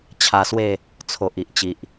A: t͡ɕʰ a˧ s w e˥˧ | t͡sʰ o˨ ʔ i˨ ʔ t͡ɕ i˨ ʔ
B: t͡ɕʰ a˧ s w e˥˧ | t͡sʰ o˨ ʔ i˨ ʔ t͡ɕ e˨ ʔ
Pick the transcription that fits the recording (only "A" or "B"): A